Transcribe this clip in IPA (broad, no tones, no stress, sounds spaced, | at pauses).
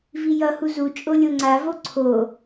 v i j ʌ h u z u t͡ʃʼ o lʲ o ŋ͡ǀ a v o ǀʰ o